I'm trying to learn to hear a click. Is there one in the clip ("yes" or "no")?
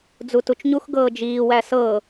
no